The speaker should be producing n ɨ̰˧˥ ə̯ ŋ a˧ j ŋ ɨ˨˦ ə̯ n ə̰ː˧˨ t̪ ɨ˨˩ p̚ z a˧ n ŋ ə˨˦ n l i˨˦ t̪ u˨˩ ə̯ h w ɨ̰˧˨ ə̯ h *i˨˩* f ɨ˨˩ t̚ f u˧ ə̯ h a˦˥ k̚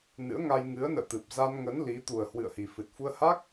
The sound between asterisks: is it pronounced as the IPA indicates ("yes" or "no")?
yes